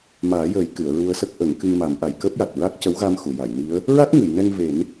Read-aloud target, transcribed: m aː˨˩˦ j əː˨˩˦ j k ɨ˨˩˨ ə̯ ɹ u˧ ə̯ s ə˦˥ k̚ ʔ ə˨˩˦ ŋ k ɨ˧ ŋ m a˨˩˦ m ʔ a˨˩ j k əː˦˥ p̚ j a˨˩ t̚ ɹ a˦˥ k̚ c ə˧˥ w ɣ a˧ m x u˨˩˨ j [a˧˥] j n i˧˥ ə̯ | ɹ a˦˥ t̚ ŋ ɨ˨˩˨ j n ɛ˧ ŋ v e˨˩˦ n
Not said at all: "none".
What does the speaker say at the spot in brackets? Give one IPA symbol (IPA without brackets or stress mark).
a˨˩˨